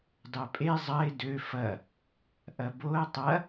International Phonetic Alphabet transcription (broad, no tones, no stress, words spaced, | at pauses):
dɑpʼe zˤɐɪ̯ dø fɐ | ʔɐboə̯ tˤɐ